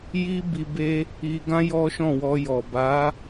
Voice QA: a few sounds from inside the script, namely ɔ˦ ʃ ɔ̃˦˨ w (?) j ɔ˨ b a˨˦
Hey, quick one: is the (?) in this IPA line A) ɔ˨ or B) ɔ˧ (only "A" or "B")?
B